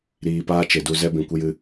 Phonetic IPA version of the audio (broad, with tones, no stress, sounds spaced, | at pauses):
ɾ iː˨ p aː˦ t͡ʃ e˨ d u˧ z ɛ˦ b ĩ˨ kʷ ɨ˦ j ɨ˦